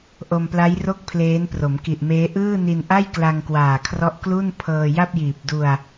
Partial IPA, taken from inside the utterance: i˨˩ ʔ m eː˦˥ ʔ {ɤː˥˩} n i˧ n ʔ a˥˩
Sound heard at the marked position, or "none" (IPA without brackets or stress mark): ɯː˥˩